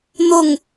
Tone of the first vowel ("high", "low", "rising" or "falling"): falling